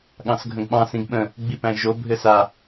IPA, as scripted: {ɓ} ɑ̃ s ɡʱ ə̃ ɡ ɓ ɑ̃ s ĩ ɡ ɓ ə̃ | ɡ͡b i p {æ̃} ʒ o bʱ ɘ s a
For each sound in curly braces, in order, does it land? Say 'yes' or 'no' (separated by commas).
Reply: no, yes